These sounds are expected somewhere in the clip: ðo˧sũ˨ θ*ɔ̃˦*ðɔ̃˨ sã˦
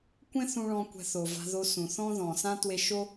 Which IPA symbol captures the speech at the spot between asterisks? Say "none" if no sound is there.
ɔ̃˦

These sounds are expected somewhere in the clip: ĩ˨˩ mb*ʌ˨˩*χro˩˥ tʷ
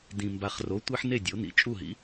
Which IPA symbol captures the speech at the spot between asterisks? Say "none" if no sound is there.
a˨˩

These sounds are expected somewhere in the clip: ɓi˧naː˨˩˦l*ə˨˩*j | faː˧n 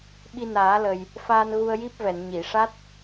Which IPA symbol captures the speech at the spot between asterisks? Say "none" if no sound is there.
ə˨˩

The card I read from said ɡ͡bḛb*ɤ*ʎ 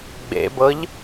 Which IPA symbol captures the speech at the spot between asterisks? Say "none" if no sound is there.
ɤ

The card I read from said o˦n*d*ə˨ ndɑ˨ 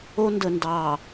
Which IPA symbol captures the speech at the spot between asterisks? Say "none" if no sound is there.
d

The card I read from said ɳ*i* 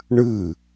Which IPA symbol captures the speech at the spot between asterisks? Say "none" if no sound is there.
ɨ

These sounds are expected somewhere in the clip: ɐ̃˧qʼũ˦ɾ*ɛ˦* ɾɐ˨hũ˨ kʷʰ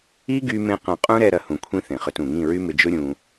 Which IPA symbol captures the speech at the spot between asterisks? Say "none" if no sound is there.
ɛ˧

